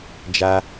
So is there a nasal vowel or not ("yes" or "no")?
no